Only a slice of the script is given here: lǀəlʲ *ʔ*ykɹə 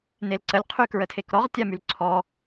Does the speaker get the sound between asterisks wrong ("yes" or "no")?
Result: yes